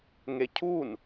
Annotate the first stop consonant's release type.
aspirated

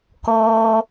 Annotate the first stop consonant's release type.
plain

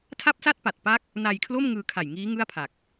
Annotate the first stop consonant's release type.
aspirated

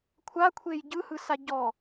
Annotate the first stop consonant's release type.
aspirated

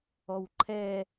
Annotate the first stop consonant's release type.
click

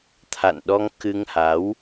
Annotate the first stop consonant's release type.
aspirated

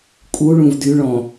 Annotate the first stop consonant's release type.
ejective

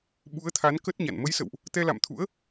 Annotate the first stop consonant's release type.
implosive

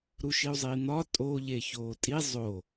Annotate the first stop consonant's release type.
ejective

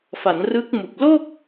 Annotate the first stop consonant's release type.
plain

